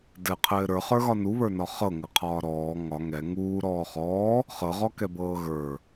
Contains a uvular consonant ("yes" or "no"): yes